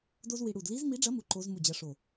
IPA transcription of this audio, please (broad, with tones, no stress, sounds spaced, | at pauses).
d o˥ z w i˧ ɽ u˧˩ d l i˧˥ z m i˧˥ ɖ͡ʐ ɐ˧˥ m u˧˥ ǃ o˧˥ z m u˧˩ d͡ʑ ɐ˧˥ ʂ o˧˩